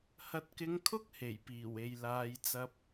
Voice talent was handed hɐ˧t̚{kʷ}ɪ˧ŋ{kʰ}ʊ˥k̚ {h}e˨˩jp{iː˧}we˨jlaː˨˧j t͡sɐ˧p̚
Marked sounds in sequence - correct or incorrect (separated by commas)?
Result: incorrect, correct, correct, incorrect